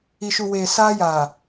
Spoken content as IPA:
i˨ʃu˨ weː˨ saː˦jaː˨

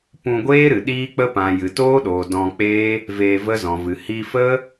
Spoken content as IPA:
pũ˧ɡʷeː˦ɾɨ˨ ɗiː˦k͡pə˦pã˨ jɨ˨toː˦ɗoː˨ dɔ̃˧k͡peː˦ | veː˧və˦zɔ̃˨vɨ˨ hi˧fə˦

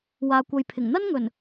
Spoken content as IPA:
waː˨kʷɐ˨jpʰɪ˨˩ŋ n̪ɐ˥nŋɵ˨˩n

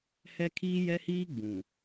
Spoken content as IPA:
hɛ˦kʰiː˦jɛ˦hiː˦ ɡ͡bũ˨

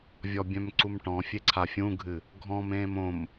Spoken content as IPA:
vʲɔbʲœ̃mǀumʈɔ̃ fʲeǀʰafʲũɡʱɨ | ɡʱɔ̃m ẽːmõm

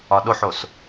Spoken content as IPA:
ɒɗoħos

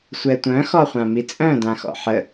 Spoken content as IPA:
sʷɛtʷœ̃ xɔχʷãmit͡sʼœ̃ dãxɔ̰ħə

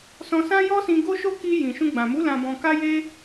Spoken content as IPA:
sɔ̃˧ sã˦jɔ˦ sĩ˧ ɡo˦ʃo˦ ki˧jĩ˨ʃũ˧ ɡ͡bã˨mu˨˦ lã˧bɔ̃˧ka˦ je˦

